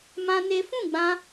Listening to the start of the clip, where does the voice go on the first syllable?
high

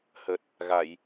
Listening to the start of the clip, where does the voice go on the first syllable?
low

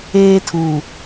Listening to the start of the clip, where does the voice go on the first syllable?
high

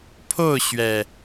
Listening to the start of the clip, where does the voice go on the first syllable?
falling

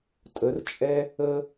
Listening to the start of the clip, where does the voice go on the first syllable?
rising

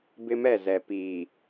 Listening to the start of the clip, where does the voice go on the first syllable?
high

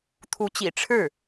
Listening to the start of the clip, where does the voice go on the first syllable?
rising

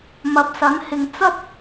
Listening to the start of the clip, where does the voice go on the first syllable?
low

